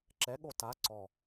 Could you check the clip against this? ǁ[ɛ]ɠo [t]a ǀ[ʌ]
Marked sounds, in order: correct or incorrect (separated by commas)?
correct, correct, incorrect